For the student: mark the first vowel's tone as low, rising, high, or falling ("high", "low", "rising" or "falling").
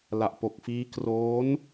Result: low